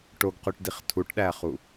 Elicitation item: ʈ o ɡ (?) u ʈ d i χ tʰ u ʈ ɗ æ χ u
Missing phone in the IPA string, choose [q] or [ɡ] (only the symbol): q